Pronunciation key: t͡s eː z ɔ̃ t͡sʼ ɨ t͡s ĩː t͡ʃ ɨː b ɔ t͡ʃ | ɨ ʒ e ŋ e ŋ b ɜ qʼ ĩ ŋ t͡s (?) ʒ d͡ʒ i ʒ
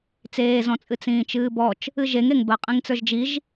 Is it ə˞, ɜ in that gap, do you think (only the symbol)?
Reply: ə˞